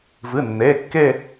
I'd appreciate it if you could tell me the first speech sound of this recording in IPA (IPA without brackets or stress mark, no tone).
v